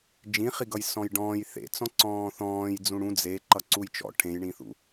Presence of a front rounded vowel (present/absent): absent